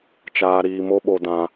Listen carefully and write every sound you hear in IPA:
t͡ʃ aː˧ ɾ iː˧ m o˦ ɓ o˧ d ã˧

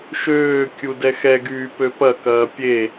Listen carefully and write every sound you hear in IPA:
ʃ øː kʲ u d ɛ x ɛ ɡ yː p ø p ɐ k ɐː pʲ e

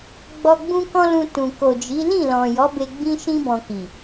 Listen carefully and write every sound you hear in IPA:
ɡ͡b ɔ˧ ɡ͡b ũ˦ k ɔ̃˦ l ũ˧ t ũ˨ k o˨ d͡ʒ i˨˦ l ĩ˦˨ l ɔ̃˨ j ɔ˨˦ b e˧ ɡ͡b ĩ˦ ʃ ĩ˦ b ɔ̃˧ k i˨

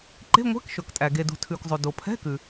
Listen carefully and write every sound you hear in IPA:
ǃ e̤˧˥˧ ŋʷ ɛ̤˧˥˧ k ʃ ɵ˩ k tʼ æ˩ ɡ e˩ d ṳ˩ tʰ ʉ˩ k zˤ o˩ d o˩ pʰ ɛ̤˧˥˧ k ʉ˩

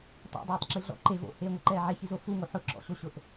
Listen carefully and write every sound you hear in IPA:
tˤ o̰ dˤ ɛː tˤ ǁ i ɮ ɔ̰ ǃ e v o̰ h eː ŋʷ ɛ ǃ ɛː ʕ e ç i z o f u ŋ o ħ ʊ ǁ ɔ̰ ɕ o ɕ ʊ ʔ

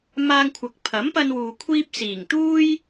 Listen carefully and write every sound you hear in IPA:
m aː˧ ŋ kʷʰ ɐ˨ k̚ pʰ ɐ˨˥ m p ɐ˧ n w uː˨ kʷʰ iː˧ p̚ s iː˨˩ ŋ t̪ uː˥ j

